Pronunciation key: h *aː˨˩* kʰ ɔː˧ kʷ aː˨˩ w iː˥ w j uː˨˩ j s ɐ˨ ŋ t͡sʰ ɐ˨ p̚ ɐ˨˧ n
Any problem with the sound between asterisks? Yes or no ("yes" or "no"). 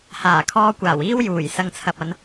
no